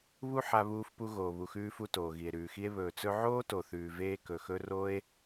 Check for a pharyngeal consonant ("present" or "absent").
present